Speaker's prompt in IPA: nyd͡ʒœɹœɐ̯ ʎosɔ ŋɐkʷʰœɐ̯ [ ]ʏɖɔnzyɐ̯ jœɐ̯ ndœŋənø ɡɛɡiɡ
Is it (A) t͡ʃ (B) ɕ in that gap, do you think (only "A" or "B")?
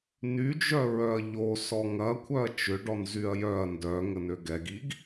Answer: A